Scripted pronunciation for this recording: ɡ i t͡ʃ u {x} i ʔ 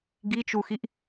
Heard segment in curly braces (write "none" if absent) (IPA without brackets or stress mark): x